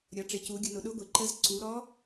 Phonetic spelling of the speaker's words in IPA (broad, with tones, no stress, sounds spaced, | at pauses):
ɾʲ ɒ˩˧ ʈ͡ʂ ɪ˩˧ c u˩˧ ɡʲ ʊ˩˧ n ʊ˩˧ ɗ ʊ˧˥ ɡʷ ɪ˩˧ ǃ ə˧˥ z ǀ u˩˧ ɾ ɔ˧˥